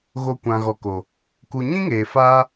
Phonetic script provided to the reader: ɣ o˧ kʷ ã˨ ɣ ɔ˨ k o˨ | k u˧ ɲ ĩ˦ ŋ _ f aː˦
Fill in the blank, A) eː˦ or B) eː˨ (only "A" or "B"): B